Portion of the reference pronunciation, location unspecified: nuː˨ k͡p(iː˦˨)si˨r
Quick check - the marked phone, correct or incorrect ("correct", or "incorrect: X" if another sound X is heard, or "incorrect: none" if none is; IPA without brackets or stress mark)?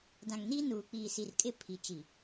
incorrect: iː˨